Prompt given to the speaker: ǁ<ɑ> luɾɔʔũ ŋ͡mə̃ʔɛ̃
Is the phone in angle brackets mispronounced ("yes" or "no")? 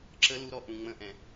yes